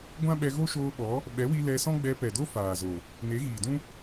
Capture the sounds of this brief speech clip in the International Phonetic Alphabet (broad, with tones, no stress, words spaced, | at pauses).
ɡʷã˦ɓɛ˧ ɣo˦ʃoː˧ɓɔ˨˦ | ɓɛ˨˦wi˧ lɛ˧sɔ̃˦ɡ͡bɛ˧ pɛ˨do˦ faː˨zo˨ | ne˨˦ɣiː˨dũ˦